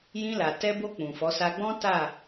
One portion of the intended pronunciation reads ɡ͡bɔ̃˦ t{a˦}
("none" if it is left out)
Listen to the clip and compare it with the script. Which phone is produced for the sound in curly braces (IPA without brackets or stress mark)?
a˦˨